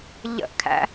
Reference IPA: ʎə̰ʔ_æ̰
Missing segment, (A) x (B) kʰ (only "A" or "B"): B